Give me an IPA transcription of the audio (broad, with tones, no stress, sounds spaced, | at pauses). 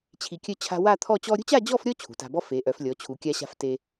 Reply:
t͡ɕʰ i˧ kʲ œ˥ t͡ɕʰ a̤˥ w a˥˧ t̪ʰ ɔ˥˧ t͡ɕ ɔ˥ ɾʲ ṳ˥ t͡ɕ a˥˧ d͡ʑ ɔ˥˧ f ɾʲ ɔ˥˧ t͡ɕʰ ṳ˩˧ t a̤˧ b ɔ˥ f e˩˧ ʔ œ˩˧ f lʲ ɔ˩˧ t͡ɕʰ u˩˧ kʲ a˧ ɕ a̤˧ f t e˧